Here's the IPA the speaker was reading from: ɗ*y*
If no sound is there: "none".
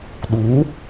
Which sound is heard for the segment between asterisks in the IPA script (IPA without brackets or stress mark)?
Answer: u